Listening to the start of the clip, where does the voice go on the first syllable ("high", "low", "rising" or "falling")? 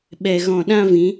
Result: low